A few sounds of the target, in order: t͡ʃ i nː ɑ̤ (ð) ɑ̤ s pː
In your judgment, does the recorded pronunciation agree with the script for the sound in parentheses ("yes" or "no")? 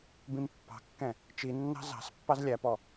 no